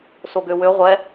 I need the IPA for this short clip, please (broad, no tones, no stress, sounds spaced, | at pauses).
s o ɡ ø w ø ʁʷ ɛ